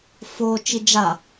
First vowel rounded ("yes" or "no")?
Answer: yes